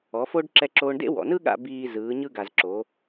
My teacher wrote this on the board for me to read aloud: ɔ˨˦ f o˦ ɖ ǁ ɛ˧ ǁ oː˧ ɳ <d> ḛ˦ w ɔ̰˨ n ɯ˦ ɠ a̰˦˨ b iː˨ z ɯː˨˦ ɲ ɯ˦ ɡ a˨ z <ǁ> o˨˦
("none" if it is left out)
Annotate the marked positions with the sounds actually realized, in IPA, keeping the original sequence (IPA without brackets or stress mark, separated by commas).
d, ǁ